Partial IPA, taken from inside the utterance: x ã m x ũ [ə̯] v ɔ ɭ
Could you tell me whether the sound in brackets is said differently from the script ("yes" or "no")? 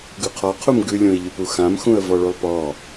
no